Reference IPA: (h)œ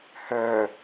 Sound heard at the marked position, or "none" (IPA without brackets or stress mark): h